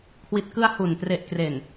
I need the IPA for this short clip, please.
kʰ w i˨˩ t̚ k ɯ˧ a̯ h u˨˩ n t r e˨˩ ʔ k r e˨˩ n

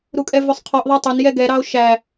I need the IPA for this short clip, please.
ɾ u kʼ ɛ v ɵ sˤ qʰ ɔ ʔ ðˤ ɑ tˤ ɵ n j ɛ ɡ ɛ ɾ ɑ o̯ ʃ æ

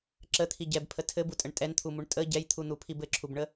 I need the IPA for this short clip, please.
ǁ ə t̪ʰ i ɟ ɛ b pʰ ə tʰ ɘ b u tʼ ə ɳ tʼ ɛ n t̪ʰ u m u ɳ tʼ ə ɟ ɛ j t̪ʰ u n̪ u pʰ i b ɘ ǁʰ u b ɳ ə

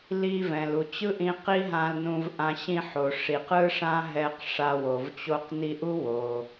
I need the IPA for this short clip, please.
l i˧ v ɛ̃˩ l u˩ t͡ɕ ɯ˥ ʔ ĩ˧ q i˥ ɦ ã˧ l n ũ˧ v ʔ ã˧ ɕ ĩ˧ ħ o˩ ʂ i˩ q ɯ˥ ʂ ã˥ ɦ ɛ˧ q ʂ a˧ w o˩ v t͡ɕ o˧ q n i˧ ʔ u˥ w o˩

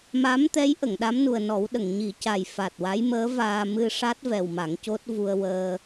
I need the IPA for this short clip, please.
m a˧˥ m t̪ ɛ˧˥ j ʔ ə˨˩˨ ŋ ɗ a˧˥ m n u˨˩ ə̯ n ɔ˨˩˦ w ɗ ə˨˩˨ ŋ ɲ i˨˩˦ c a˨˩ j f a˨˩ t̚ w a˧˥ j m əː˧˥ v aː˧ m ɨ˧ ʂ a˦˥ t̚ v ɛ˨˩ w m a˨˩˦ ŋ c o˦˥ t̚ v u˧ ə̯ w əː˧

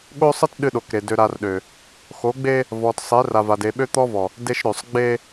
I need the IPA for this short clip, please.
ɠ o˦ sˤ ɨ˦ t ɗ ɨ˦ ɗ o˨ k ɾ e˨ d ø˨ ɾ a˨ r ɗ ø˨ | x o˨˦ ɡ͡b e˦ | v ɔ˨ t sˤ e˨˦ r a˨ v a˨ d e˨ ɓ ø˦ t̪ ɔ˦ v ɔ˨ | d e˦ ʃ ɾ ø˨ sˤ ɡ͡b e˦

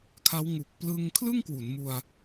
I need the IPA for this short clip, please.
kʰ a˦˥ w ŋ u˨˩ k̚ p l ɯ˧ ŋ kʰ l ɯ˥˩ ŋ k w u˩˦ n m u˧ a̯

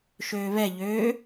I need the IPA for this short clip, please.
ʃ øː β ɛ ʎ øː

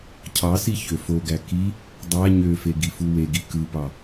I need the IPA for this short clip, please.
cʰ ɑ s i ç ø f o ɡ æ k i | dˤ æ ɲ ø f e ɡ i f u w e ɡ i k ɯ p ɑ

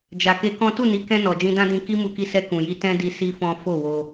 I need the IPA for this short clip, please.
d͡ʒ a˨ k e˧ k ɔ̃˦ t u˦˨ n i˨˦ k ɛ̃˧ n ɔ˨ d͡ʒ ĩ˧ d ã˦ d ĩ˧ k i˦ m u˧ k i˧ s ɛ˧ k ũ˨ j i˧ t ɛ̃˦ d i˧ s i˦ f ɔ̃˦ f o˦˨ w o˧

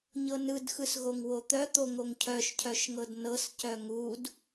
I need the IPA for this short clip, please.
ɲ ɤ n ɯ d x ɯ s ɣ o ŋ w o t̪ œ t̪ o ŋ o ŋ cʰ œ ʃ cʰ œ ʃ ŋ ɤ d n ɤ s c œ ŋ u d

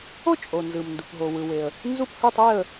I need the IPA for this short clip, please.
o˥˨ t͡ʃʼ o˩ n z ɯ˩ m n d u˩ p ɦ o˩ w ɯ˩ w e˩ ə̯ | n z u˥˨ p h ɯ˥˨ tˤ e˥˨ ə̯

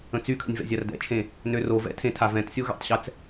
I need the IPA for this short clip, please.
ə̃ t͡s y kʰ ə̰ nʲ v ɛ̰ zʲ a r d ɛ̰ t͡ʃʰ ẽ | n ø r o v ɛ̰ tʰ ẽ tʰ a v ɛ̃ t sʲ o ɣ ɛ̰ tˤ ɕ ɛ t͡s

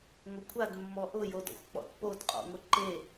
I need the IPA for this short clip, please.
ŋʷ ɪ kʷʰ a d mː ɔ ʔ ʊ j o d ɔ̰ xʷ k͡p ɔ̰ t p o d qʼ ɔ̰ ŋʷ ɪ ǃ e

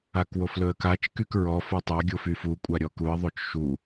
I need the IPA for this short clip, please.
a k w o f l ɵ ə̯ k a t͡ʃ k y k ɹ ɔ f o tˤ a ɡʲ o f y f u kʷʼ a ɾʲ ɔ k u ə̯ ðˤ o t͡ʃ ʃ u

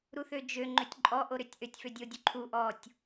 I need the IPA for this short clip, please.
ɾ u θ ø d͡ʒ ø ŋ͡ǃ ø tʲ ǃʼ ɔ ʔ o ɾ ø tʲ ʔ ø tʲ f ø dʲ o dʲ o ǃʰ u ʔ ɔ tʲ

